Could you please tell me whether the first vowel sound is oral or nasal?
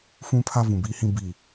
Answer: nasal